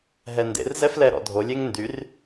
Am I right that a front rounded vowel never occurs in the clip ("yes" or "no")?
no